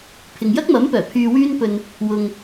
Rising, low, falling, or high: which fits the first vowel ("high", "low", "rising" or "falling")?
low